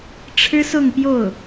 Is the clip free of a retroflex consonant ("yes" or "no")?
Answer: no